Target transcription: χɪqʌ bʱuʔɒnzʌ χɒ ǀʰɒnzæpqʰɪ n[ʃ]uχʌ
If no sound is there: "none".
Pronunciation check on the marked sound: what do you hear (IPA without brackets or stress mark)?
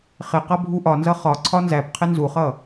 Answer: z